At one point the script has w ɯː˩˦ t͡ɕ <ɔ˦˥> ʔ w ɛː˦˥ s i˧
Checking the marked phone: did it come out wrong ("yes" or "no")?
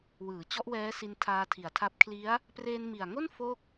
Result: no